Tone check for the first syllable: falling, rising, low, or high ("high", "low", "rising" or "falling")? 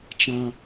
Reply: high